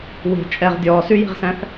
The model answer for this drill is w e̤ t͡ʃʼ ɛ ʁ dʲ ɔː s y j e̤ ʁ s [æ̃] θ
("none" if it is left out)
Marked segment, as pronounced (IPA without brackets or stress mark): æ̃